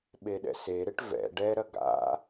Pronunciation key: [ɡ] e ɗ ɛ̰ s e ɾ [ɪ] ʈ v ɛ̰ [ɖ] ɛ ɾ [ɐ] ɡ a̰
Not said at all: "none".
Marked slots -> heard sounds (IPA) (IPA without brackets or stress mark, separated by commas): ɓ, ɪ, ɖ, ɐ